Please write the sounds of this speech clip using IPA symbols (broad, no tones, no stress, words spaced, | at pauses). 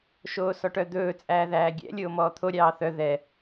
ʃoːsɔʈœd̪ɵː t͡sʼæːðæːɡʲɛ̰ lʲoːmɔːt̪ʰo ɾʲɑːθœ ðɛ